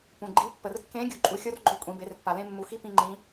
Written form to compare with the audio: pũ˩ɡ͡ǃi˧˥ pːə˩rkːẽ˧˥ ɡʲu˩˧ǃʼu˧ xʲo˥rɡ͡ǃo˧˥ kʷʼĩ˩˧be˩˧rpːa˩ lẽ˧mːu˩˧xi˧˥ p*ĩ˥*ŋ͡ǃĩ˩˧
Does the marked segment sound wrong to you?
yes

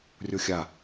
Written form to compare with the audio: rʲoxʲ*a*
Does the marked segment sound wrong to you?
no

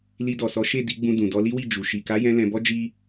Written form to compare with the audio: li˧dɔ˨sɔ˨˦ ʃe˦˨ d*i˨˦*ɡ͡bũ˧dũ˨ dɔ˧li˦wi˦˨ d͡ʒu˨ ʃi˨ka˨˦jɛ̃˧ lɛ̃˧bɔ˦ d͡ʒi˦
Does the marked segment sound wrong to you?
no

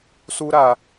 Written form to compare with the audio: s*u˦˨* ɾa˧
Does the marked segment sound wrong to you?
yes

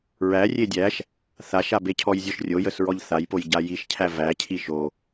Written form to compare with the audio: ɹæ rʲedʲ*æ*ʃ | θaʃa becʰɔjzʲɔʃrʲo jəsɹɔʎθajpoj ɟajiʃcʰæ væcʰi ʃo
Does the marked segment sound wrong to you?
no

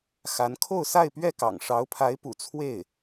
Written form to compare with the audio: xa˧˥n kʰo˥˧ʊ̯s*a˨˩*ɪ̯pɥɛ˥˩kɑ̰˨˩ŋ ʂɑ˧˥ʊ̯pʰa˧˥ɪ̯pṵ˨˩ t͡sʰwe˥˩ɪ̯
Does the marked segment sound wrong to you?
yes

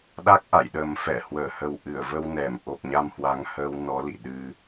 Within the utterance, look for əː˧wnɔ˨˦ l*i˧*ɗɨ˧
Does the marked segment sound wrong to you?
yes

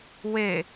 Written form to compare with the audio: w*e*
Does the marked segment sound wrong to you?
no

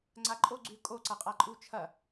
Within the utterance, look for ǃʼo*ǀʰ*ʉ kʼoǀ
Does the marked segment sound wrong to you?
yes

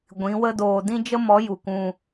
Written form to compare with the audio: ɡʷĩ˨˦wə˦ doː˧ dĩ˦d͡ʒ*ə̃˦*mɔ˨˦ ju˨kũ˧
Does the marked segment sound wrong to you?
yes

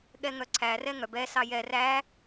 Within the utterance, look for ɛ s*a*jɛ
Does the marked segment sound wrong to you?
yes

